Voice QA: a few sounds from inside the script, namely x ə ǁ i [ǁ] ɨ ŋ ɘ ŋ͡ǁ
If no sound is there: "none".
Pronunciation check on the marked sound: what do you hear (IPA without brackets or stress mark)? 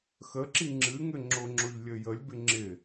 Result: ŋ͡ǁ